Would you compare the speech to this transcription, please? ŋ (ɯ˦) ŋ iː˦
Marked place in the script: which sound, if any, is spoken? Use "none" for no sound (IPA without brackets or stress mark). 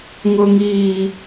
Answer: ʊ˦